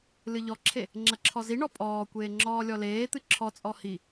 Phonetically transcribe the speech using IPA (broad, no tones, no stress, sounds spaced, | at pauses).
l ɨ ʎ ɔ ǁʰ e | ŋ͡ǁ ɐ ǁʰ ɔ z i ɳ ɔ pʼ ɔː kʷ eː ŋ͡ǁ ɔː lʲ ɔ l eː t̪ ɨ ǁʰ ɔ t͡sʼ ɔ h i